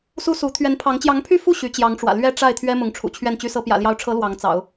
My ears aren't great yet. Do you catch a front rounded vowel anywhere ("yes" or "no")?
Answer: yes